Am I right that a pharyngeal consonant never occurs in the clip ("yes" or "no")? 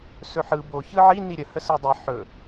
no